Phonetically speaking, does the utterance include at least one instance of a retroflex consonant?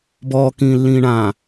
yes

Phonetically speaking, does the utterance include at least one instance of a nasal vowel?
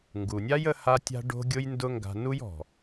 no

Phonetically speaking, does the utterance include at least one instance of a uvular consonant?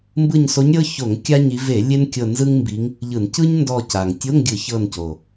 no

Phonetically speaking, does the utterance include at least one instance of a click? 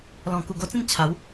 no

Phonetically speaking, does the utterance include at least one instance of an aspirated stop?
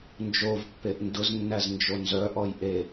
no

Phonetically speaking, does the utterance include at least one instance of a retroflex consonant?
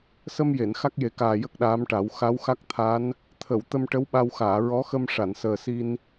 yes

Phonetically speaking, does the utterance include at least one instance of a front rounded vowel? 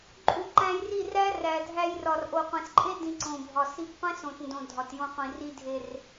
no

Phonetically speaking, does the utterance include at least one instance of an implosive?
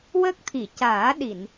yes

